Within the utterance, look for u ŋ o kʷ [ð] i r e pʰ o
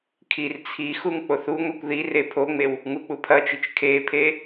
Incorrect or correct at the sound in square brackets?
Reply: correct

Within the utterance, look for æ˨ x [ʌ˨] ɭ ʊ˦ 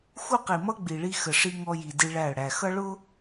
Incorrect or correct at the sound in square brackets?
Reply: incorrect: ʌ˦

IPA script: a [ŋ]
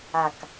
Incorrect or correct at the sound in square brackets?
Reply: incorrect: k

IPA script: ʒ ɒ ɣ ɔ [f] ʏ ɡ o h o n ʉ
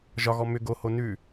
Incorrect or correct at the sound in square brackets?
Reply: incorrect: m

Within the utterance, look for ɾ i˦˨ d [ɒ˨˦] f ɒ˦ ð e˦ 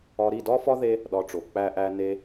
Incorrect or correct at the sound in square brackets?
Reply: incorrect: ɒ˦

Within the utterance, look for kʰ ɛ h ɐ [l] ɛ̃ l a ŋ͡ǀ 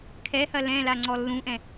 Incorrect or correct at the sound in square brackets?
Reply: correct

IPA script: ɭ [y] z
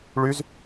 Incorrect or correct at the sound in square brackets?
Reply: correct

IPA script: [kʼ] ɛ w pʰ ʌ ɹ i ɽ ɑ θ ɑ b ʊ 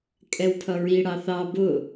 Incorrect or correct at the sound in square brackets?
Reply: correct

